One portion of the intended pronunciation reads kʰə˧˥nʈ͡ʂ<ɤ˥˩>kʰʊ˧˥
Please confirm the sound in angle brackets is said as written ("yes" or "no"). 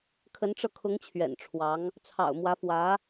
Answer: no